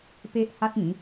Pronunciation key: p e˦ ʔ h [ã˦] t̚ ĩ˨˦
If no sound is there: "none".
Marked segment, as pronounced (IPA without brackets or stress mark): a˦